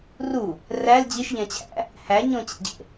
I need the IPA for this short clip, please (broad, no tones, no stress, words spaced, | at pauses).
ru | ræl d͡ʑiʃʎæ̃t͡ɕʰæ̰ | hæ ɲõt͡ɕḛɟḛ